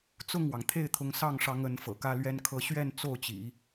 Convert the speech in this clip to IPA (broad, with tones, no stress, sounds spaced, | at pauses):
t͡s ʊ˥˩ ŋ w ɑ˩ ŋ t̪ʰ e˥˩ ɪ̯ t̪ʰ ʊ˧˥ ŋ s ɑ˥˩ ŋ ʂ ɑ˧˥ ŋ ə˧˥ n f ɤ̰˨˩ k ä˥ l ɥ ɛ˧˥ n kʰ ɤ˧˥ ɕ ɥ ɛ˥˧ n t͡s o˥˩ ʊ̯ t͡ɕ ḭ˨˩˦